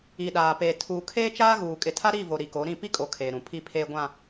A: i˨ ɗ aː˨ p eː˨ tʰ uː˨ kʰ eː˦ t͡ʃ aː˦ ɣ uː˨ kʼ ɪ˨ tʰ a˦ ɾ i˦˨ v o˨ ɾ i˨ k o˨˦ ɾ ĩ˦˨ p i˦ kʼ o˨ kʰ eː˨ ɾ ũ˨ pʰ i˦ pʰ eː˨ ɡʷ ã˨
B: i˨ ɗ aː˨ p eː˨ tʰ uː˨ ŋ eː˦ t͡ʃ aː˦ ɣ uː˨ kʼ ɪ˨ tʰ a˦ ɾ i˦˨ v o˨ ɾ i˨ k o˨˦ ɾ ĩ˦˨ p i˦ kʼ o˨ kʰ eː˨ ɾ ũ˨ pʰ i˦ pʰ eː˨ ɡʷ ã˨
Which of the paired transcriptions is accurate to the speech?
A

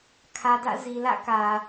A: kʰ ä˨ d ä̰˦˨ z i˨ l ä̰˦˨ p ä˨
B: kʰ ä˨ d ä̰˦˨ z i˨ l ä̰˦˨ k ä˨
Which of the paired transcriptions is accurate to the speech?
B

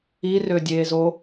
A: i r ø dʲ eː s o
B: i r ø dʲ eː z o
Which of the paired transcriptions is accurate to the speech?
B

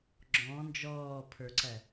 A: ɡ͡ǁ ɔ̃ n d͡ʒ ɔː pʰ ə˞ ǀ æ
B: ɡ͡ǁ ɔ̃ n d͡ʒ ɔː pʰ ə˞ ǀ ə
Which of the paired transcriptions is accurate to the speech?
A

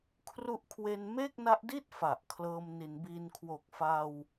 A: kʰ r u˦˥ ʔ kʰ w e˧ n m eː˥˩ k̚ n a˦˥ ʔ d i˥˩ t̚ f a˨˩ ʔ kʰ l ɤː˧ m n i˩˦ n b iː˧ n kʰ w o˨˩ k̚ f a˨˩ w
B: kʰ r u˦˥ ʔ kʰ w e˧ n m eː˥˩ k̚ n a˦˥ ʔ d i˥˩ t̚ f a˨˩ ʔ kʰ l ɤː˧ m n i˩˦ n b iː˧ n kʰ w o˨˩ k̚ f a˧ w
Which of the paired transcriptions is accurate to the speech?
B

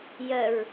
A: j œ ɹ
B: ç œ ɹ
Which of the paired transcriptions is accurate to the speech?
A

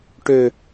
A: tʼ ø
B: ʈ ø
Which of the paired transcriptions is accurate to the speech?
B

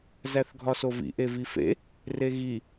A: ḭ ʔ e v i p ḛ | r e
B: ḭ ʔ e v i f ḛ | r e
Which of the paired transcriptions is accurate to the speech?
B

